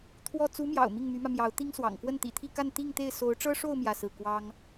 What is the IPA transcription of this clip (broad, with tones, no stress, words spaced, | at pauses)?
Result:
t̪ʰwɔ˥˩ t͡su˧˥mjɑ̰˨˩ʊ̯ mi˥˩ŋmy˧˥mä˧ mjɑ˧˥ʊ̯ t̪i˥ŋswɑ̰˨˩ŋ kwə˥˩nt̪ḭ˨˩t̪ʰi˥˧ka˥˧n t̪i˥˧ŋ t̪e˥˩ɪ̯ so˧˥ʊ̯ʈ͡ʂɤ˥ʂo˥˧ʊ̯ mjä˥˧sɹ̩˥˩ kwɑ˥ŋ